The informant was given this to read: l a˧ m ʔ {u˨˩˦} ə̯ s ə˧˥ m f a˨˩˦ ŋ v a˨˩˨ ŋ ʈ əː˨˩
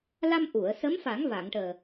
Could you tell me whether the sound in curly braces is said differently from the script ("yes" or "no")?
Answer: yes